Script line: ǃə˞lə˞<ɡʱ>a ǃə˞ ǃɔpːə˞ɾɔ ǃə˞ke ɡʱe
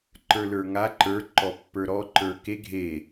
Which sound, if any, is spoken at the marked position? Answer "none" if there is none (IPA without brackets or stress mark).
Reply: ŋ